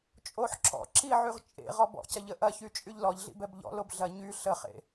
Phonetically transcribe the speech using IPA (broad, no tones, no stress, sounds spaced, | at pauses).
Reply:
t͡ʃʼ o ħ ǁ ɔ̰ ǁ i ʕ y ʁ t͡ʃʼ ḛ ʁ ɔ b ɔ̰ c ɐ ʎ ə ʔ ɐ ç y t͡ʃʼ y ʎ l ɔ ʎ ɮ ḭ b ɛ b ʎ ɔ̰ l o b ɮ ɐ ɲ y ɬ ə χ ḛ